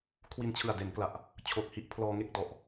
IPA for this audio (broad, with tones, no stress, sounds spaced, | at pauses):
kʰ w i˧ n t͡ɕʰ ɯ˨˩ a̯ d e˩˦ n k l a˨˩ ʔ | t͡ɕʰ o˨˩ k̚ h i˦˥ ʔ pʰ l ɔː˧ ŋ e˥˩ k̚ d ɔ˨˩ ʔ